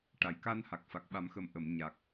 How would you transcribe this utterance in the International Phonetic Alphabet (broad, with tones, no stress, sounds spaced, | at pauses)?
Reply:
ʈ a˨˩˨ j k a˧ n h a˨˩ k̚ f a˨˩ k̚ ɓ a˨˩˦ m x ə˨˩˦ m ʔ ə˨˩˨ m ɲ a˨˩ k̚